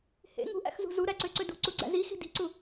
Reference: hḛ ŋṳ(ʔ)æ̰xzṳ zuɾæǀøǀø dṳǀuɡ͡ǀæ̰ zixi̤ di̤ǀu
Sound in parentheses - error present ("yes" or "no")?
no